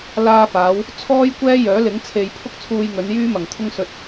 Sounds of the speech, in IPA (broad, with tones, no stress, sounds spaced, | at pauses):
l aː˧ f aː˨˧ w | t͡sʰ ɔː˥ j kʷ ɛː˥ j œː˨˥ l ɪ˨˥ ŋ t͡sʰ e˧ j pʰ ʊ˥ k̚ t͡sʰ uː˧ j ŋ ɵ˨˧ n j yː˥ m ɐ˨ ŋ t̪ʰ ʊ˥ ŋ s ɵ˧ t̚